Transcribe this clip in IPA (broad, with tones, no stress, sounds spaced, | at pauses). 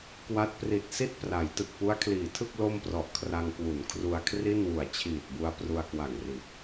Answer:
k w a˦˥ t̚ p r i˨˩ t̚ s i˥˩ t̚ p r a˩˦ j t ɯ˨˩ k̚ p u˦˥ a̯ kʰ l iː˩˦ tʰ ɯ˥˩ k̚ l o˥˩ m p r ɔ˨˩ ʔ kʰ r a˧ ŋ k w u˩˦ n kʰ r u˧ a̯ kʰ r i˥˩ n w u˨˩ a̯ t͡ɕʰ iː˨˩ t̚ b u˧ a̯ p r u˧ a̯ k w a˨˩ ŋ r i˨˩ t̚